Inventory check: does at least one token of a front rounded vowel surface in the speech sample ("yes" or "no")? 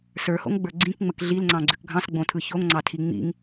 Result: yes